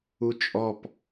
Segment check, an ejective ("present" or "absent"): present